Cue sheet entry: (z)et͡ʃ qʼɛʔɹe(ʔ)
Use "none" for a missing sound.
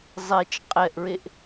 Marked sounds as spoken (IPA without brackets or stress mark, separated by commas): zˤ, ʔ